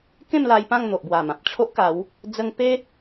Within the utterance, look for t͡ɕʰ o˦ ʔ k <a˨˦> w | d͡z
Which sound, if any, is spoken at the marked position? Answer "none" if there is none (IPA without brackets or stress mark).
a˨˦